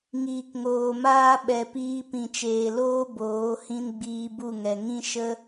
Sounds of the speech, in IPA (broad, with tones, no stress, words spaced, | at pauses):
ŋiː˨kŋoː˨maː˦ ɓɛ˨piː˧ pĩ˨t͡ʃeː˨loː˦ boː˨˦hĩ˦n ɡ͡biː˧bu˦˨ŋɛ˨ ŋĩ˦ ʃə˦